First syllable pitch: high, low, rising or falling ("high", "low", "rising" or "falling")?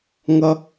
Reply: high